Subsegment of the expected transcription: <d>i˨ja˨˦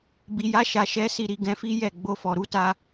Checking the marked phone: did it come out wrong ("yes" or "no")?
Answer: yes